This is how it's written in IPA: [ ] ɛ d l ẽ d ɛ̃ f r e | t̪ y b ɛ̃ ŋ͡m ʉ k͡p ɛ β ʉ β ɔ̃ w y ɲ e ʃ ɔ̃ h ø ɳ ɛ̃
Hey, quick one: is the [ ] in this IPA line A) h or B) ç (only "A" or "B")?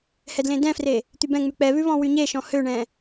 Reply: A